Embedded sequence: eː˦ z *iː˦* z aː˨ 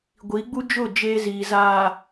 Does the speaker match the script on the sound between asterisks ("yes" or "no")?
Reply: no